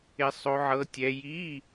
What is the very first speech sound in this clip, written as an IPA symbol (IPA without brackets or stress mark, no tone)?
ɪ